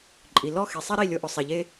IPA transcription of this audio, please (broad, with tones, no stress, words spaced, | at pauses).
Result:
ǃʼi˨ lɔ˦˨xe˨sˤɛ˦ɾi˦˨ lʲo˧ʔœ˨sˤɛ˨ʎe˦